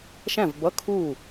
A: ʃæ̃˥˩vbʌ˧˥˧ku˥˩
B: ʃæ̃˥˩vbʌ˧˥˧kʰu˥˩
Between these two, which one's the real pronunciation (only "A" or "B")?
B